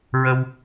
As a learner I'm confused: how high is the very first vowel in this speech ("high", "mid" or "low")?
mid